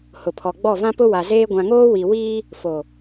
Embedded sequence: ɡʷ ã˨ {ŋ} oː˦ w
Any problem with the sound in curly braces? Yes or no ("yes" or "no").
no